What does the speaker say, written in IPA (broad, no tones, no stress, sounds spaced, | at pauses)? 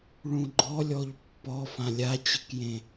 ɭ ũ ɡ͡ǃ ɔ lʲ ɔ ʎ pː ɔ f ã lʲ a t͡ɕ ɨ k j ẽ